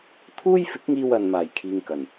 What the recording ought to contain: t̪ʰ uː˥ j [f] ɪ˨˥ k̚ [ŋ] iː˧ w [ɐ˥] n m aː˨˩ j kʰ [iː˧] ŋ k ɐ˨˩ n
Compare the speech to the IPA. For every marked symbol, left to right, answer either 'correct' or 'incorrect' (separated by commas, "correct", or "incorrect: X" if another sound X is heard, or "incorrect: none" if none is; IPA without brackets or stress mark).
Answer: correct, correct, incorrect: ɐ˨, incorrect: iː˨